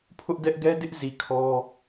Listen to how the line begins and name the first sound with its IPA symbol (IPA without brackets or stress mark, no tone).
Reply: pʰ